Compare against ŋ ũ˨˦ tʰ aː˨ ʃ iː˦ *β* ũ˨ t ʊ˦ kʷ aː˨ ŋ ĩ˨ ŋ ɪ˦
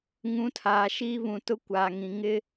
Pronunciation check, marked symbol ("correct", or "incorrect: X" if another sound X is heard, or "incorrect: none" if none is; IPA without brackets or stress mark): correct